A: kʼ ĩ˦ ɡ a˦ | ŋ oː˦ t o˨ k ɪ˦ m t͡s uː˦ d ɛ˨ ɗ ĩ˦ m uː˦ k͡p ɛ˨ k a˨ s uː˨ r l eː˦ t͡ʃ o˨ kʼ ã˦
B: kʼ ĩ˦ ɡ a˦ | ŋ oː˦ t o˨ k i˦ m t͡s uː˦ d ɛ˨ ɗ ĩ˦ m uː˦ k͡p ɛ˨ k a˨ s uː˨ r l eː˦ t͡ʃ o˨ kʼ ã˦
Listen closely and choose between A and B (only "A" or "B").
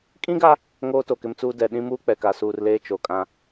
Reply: A